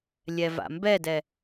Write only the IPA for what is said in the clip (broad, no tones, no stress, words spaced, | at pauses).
lʲɛva̰mbɛdɛ